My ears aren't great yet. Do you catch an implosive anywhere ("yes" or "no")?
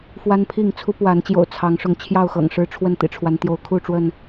no